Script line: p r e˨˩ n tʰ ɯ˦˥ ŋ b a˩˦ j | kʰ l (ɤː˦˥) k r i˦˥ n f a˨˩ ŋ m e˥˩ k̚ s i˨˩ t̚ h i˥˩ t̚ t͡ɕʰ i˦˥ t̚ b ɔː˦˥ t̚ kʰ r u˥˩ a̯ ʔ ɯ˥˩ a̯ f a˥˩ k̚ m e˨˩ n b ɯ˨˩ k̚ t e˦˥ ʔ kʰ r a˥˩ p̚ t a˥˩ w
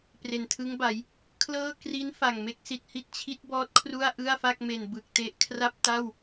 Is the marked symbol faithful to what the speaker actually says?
no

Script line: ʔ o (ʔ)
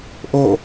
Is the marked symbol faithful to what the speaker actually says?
no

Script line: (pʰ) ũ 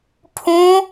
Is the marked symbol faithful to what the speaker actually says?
yes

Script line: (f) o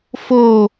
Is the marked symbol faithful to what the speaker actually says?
yes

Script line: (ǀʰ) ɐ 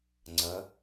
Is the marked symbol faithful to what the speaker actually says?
no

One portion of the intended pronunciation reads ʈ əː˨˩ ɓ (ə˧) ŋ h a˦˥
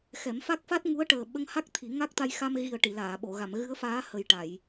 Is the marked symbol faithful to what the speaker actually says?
yes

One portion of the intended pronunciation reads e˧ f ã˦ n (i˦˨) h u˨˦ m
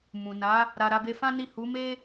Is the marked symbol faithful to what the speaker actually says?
yes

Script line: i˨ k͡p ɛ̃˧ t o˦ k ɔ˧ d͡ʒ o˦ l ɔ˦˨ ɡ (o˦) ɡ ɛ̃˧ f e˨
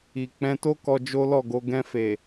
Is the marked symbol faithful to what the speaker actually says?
no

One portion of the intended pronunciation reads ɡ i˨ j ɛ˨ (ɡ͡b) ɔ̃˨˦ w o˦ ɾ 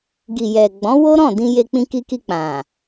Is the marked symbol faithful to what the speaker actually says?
yes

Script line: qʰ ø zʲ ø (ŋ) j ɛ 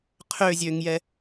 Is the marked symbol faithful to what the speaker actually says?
yes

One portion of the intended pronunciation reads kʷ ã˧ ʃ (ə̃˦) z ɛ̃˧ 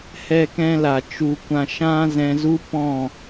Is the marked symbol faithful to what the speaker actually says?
no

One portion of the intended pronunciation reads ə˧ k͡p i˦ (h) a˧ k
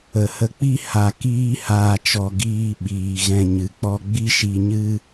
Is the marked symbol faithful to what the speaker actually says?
yes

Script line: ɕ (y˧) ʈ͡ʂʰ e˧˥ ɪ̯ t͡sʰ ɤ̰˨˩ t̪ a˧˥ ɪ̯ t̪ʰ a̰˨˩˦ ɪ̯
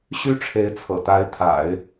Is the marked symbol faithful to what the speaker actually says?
no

